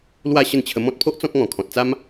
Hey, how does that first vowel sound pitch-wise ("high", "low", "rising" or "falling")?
falling